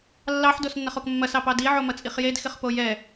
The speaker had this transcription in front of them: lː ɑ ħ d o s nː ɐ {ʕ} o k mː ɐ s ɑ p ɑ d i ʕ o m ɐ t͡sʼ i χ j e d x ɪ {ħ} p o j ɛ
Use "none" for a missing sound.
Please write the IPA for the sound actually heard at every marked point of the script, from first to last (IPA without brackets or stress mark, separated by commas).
χ, χ